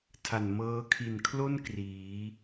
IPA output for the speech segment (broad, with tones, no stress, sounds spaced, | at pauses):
tʰ a˨˩ n m ɤː˧ kʰ i˨˩ n kʰ l o˥˩ n k r iː˩˦